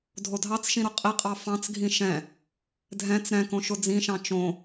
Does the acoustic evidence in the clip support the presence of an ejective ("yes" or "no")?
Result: yes